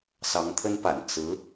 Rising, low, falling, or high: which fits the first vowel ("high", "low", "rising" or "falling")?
rising